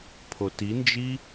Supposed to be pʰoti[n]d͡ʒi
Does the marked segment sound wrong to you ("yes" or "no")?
no